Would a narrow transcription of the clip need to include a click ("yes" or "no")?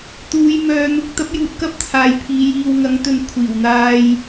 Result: no